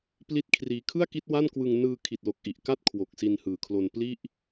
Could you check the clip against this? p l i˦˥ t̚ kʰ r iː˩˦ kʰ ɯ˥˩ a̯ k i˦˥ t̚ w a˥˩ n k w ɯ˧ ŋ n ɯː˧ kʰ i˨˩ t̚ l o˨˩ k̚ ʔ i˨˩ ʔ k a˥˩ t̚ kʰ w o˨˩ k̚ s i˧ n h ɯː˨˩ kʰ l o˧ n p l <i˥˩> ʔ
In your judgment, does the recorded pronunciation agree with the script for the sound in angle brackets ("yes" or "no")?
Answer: yes